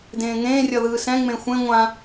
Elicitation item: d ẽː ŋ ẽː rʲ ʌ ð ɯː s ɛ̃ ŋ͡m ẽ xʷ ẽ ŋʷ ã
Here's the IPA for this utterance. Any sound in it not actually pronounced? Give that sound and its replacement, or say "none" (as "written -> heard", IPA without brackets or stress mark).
none